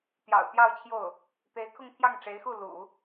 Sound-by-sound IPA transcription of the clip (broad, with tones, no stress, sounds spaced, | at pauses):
t̪ j ɑ̰˨˩ ʊ̯ t̪ j ɑ˥˧ ʊ̯ t͡ɕʰ j o˥˩ ʊ̯ | t̪ e˧˥ ɪ̯ kʰ ʊ˥˧ ŋ t̪ʰ j ɑ˥˩ ŋ ʈ͡ʂ e˧˥ ɪ̯ x u˥˩ l ṵ˨˩˦